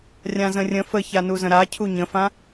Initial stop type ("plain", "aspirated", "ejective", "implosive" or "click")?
aspirated